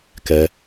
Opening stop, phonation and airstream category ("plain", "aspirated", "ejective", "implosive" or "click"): plain